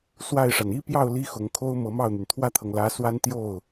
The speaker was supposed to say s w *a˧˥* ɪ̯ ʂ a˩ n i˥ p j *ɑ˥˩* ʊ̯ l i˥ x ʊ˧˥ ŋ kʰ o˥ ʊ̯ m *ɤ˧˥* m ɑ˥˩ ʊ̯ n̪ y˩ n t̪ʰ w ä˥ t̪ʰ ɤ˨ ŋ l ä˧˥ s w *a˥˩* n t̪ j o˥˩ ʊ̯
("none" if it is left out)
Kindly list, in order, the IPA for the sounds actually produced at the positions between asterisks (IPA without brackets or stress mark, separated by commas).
a˥˩, ɑ˥˩, ɤ˧˥, a˥